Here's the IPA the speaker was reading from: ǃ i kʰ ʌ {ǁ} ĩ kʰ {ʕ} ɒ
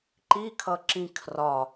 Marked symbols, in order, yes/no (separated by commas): yes, no